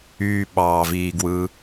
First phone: yː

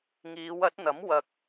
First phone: ŋ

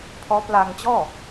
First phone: pʰ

